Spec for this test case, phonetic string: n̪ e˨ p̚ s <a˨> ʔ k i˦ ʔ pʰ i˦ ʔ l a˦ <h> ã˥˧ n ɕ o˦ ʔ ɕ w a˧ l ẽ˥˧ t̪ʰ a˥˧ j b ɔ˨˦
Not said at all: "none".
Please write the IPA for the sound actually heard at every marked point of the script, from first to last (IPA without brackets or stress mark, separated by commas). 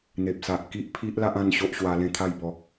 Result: a˨, ʔ